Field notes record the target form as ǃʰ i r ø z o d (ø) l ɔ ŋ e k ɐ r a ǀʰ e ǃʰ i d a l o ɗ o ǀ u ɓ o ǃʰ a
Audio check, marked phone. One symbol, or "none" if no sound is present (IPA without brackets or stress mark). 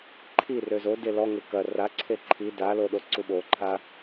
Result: e